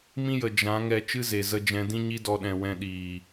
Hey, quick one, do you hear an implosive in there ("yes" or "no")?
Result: yes